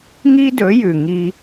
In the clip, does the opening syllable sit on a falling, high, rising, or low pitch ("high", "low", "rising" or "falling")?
high